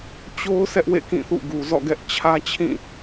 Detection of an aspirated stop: present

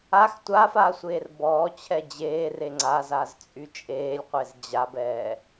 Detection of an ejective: present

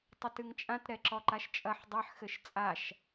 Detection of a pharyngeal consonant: present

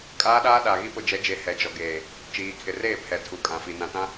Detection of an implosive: present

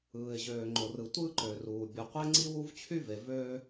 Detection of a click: present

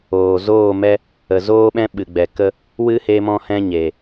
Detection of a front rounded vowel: absent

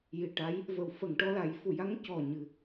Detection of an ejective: absent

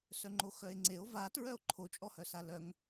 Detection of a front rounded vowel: present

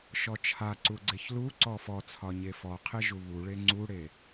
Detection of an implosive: absent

